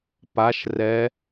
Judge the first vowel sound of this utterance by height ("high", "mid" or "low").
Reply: low